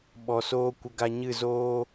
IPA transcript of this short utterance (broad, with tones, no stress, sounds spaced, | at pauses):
ɓ ɔ˨ s oː˧ kʷ ə˧ ɡ a˧ ɲ ɨ˦˨ z oː˦